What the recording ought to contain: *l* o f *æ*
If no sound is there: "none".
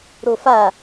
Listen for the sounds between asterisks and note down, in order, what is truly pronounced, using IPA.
ɾ, a

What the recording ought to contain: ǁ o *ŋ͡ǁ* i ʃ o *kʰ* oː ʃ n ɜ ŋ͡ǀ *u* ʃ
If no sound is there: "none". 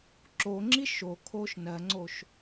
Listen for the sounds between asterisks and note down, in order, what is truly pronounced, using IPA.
ŋ͡ǁ, kʰ, o

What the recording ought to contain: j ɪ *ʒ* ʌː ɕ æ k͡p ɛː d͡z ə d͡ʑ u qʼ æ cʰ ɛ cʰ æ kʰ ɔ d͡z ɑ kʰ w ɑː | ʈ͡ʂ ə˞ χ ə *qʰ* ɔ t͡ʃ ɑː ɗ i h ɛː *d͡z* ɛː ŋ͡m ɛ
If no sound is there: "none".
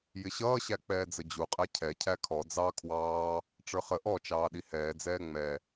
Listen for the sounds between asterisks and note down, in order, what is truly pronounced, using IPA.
ɕ, ʔ, d͡z

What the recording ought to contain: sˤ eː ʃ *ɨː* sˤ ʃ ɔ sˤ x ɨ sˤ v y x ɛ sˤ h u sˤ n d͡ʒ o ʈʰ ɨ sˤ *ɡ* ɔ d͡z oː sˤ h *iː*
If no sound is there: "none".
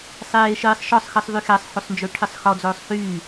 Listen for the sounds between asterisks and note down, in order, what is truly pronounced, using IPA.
ɨː, x, yː

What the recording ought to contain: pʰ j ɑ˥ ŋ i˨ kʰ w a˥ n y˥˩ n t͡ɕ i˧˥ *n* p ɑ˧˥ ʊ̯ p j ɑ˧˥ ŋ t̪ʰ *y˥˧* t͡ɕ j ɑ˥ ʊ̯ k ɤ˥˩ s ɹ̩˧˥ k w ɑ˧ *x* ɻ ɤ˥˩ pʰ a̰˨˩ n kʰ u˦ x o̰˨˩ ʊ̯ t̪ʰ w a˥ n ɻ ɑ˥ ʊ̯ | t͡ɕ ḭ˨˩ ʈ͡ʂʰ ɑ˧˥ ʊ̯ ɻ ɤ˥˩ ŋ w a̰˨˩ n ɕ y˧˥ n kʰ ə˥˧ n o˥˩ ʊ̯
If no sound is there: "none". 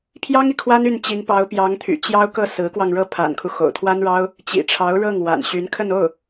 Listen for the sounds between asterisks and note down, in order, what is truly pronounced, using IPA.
ŋ, y̰˨˩, ŋ

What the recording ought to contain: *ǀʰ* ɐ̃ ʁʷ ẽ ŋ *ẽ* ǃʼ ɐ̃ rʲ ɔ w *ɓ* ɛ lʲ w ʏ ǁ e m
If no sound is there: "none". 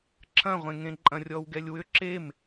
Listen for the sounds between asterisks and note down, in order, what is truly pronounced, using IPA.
ǁʰ, ẽ, ɡ

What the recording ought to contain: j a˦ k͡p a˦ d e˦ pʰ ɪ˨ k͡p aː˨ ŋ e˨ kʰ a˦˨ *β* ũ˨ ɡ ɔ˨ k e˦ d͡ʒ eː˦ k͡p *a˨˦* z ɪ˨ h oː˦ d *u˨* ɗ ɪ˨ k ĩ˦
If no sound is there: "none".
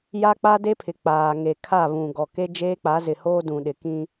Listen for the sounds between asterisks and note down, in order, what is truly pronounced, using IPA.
β, a˨˦, ũ˨

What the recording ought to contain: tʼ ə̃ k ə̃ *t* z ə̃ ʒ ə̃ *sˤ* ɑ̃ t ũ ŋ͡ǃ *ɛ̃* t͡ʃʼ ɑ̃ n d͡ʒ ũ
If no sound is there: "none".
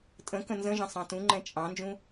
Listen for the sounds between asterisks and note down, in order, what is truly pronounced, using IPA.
n, sˤ, ɛ̃

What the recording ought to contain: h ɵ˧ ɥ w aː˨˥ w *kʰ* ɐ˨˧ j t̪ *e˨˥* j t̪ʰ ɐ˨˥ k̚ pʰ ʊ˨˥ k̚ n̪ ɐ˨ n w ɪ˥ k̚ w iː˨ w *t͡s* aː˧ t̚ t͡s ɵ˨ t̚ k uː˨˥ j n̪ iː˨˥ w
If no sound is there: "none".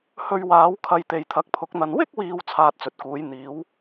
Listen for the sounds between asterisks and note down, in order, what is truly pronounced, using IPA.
kʰ, e˨, t͡sʰ

